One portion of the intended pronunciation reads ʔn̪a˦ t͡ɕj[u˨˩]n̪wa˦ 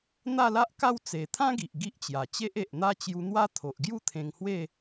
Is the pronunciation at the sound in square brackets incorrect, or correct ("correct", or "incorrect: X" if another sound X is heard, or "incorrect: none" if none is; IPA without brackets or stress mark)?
incorrect: u˧